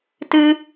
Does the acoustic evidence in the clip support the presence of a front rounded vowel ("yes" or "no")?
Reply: no